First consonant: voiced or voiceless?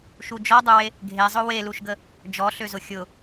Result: voiceless